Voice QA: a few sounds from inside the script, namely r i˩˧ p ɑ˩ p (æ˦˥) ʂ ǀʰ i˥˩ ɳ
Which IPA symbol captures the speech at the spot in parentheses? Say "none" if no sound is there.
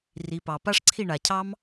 a˦˥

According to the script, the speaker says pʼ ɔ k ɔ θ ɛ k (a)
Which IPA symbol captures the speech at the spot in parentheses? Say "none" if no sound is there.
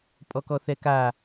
a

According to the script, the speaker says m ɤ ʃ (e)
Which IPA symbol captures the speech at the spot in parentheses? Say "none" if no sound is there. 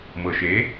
e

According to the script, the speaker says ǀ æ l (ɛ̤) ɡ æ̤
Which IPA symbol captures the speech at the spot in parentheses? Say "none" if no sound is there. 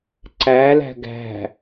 æ̤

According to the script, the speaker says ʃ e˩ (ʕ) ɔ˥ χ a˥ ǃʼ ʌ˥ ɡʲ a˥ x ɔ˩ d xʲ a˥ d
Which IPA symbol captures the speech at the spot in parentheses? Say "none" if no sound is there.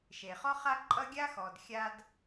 χ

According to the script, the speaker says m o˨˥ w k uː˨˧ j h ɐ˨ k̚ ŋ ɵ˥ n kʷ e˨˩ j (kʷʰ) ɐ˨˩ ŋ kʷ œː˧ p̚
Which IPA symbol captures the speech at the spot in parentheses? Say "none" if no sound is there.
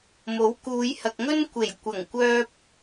kʷ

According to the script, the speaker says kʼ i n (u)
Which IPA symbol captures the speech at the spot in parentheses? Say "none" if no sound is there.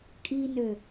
ø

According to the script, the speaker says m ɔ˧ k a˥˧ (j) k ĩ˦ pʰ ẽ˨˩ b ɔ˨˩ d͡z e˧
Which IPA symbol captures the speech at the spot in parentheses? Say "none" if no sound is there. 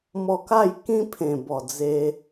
j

